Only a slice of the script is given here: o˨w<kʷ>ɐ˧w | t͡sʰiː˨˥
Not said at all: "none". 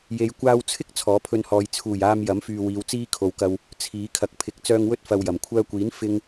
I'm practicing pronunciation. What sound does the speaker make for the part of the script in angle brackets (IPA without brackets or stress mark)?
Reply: k